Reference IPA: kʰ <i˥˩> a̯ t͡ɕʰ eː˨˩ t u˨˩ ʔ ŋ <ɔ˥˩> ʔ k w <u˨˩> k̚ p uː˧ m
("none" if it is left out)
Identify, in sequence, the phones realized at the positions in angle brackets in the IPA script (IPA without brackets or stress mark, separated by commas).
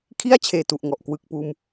i˥˩, ɔ˨˩, ɯ˨˩